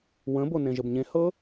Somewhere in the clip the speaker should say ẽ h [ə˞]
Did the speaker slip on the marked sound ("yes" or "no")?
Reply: yes